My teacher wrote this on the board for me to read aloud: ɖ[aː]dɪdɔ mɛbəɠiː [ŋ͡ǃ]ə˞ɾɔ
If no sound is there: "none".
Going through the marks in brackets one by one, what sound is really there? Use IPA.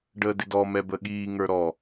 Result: əː, ŋ

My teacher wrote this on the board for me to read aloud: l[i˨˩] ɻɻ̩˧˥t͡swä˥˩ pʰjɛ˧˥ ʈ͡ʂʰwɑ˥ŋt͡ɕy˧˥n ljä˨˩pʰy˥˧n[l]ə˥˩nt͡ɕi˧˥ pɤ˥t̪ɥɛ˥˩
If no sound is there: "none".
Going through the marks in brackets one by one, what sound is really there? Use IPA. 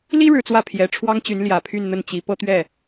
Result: i˥, n̪

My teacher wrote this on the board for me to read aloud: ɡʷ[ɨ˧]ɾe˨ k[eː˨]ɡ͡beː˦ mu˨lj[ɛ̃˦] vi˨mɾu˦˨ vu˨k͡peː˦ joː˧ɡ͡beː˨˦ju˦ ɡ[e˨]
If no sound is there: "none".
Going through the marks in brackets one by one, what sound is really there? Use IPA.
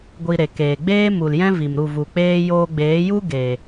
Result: i˧, eː˨, ɛ̃˦, e˨

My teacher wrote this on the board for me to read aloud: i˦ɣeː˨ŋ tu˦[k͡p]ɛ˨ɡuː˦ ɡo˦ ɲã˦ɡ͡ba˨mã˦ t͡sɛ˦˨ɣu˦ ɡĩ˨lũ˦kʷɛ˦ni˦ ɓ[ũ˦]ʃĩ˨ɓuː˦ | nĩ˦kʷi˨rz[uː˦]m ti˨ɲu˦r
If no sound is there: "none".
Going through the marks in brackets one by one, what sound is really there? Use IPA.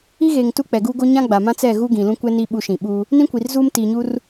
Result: k͡p, u˦, uː˦

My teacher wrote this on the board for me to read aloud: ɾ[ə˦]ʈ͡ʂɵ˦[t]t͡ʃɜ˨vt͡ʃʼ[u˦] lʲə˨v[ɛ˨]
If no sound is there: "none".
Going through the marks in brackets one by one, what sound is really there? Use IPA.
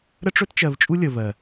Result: ə˦, t, u˦, ɜ˨

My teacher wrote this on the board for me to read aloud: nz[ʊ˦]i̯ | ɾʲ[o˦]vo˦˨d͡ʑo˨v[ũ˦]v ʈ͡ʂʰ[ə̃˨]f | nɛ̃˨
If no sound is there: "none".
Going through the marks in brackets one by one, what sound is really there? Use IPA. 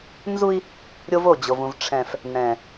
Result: u˦, o˦, ũ˨, ɛ̃˨

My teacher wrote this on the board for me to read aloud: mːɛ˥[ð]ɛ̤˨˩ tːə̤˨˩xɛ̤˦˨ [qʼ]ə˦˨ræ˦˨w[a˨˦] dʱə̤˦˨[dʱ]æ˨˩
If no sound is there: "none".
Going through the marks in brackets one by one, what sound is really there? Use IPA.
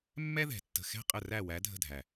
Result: ð, qʼ, æ˨˦, dʱ

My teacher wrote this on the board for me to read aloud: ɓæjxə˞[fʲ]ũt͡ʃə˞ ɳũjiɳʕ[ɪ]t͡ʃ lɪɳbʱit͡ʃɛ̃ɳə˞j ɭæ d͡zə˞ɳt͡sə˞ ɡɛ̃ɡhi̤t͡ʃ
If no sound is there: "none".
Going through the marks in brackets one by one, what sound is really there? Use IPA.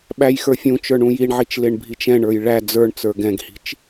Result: fʲ, i

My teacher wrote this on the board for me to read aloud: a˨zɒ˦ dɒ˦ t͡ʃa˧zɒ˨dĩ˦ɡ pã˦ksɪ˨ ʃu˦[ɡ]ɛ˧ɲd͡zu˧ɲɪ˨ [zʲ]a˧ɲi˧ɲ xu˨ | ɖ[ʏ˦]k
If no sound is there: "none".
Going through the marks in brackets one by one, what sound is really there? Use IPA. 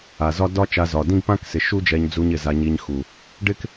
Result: d͡ʒ, z, ɪ˦

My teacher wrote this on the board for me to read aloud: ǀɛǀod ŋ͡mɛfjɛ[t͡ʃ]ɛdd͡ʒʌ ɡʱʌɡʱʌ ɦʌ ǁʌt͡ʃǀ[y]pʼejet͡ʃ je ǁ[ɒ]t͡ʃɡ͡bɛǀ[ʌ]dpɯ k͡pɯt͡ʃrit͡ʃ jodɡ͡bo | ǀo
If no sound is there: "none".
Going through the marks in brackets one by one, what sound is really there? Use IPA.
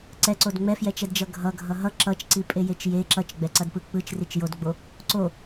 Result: t͡ʃ, i, ʌ, ʌ

